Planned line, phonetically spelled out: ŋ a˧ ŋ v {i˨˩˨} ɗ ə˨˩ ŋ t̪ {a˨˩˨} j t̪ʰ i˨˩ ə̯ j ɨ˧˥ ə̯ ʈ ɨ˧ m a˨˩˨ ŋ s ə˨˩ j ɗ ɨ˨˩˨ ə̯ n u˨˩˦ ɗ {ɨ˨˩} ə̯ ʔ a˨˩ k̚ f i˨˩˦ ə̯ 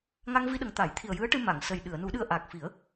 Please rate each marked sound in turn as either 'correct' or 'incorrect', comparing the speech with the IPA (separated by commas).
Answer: incorrect, incorrect, incorrect